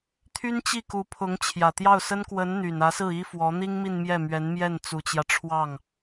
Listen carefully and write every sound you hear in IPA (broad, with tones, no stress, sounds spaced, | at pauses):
t̪ʰ y˥ n t͡ɕ i˥˩ k u˧˥ pʰ ʊ˧˥ ŋ t͡ɕʰ j ä˨˩ t̪ j ɑ˥˩ ʊ̯ s ə˥ n k w ə˧˥ n n̪ y˨˩ n ä˧˥ s ɹ̩˥˩ i˥ f w ɔ˧˥ n̪ i˥ ŋ m i˥˧ n m j ɛ˥˩ m ɥ ɛ˧˥ n m j ɛ˥˩ n t͡s u˨˩ t͡ɕ j ä˦ ʈ͡ʂʰ w ɑ˥˩ ŋ